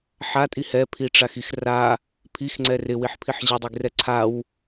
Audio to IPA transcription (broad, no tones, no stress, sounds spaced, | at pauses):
ħ a tʼ i h ɛ pʰ i ʈ͡ʂ a x i x r a | pʰ i x ŋ͡ǀ ɛ r ɪ w i ħ pʰ i ħ ʑ ɪ dˤ i ɡ r ɛ ǀʰ a w